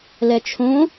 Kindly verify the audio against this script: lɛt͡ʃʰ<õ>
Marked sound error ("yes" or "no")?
no